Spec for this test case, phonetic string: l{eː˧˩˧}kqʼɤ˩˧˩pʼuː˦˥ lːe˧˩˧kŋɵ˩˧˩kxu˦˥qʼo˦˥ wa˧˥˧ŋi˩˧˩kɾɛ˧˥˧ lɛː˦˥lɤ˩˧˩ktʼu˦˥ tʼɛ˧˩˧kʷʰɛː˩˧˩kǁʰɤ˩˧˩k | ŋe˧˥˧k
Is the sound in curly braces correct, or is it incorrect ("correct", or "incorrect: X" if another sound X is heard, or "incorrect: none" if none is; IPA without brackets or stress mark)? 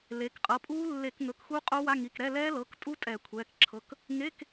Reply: incorrect: eː˩˧